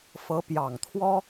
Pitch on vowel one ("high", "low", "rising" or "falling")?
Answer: rising